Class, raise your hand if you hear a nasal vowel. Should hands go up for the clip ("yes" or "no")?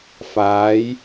no